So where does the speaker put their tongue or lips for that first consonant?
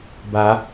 lips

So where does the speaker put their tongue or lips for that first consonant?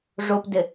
retroflex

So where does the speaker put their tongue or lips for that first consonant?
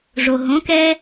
retroflex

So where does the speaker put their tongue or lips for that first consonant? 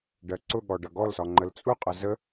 retroflex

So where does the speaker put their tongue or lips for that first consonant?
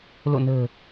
tongue tip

